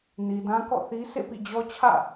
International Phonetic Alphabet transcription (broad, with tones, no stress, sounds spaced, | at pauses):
n i˨ d ã˦ k ɔ̰˦˨ θ i˦ s ḛ˦˨ p ḭ˦˨ d͡ʑ ɔ˦ t͡ɕʰ ä̰˦˨